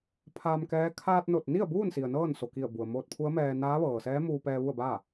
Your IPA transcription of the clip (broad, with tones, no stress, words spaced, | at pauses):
pʰaː˧mkɛː˧˥ kʰaː˧t̚no˧˩t̚ni˥˨ə̯ buː˥˨nsi˩ə̯ nɤː˥˨nso˩ki˧˩ə̯ bu˩ə̯moː˧t̚pʰu˧˥ə̯mɛː˧ naː˧˥ ʋɤː˩sɛː˧˥ muː˧pɛː˧ ʋu˥˨ə̯baː˥˨